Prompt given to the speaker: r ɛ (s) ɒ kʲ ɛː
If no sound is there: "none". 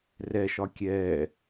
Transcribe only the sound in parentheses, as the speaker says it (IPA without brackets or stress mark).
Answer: ʃ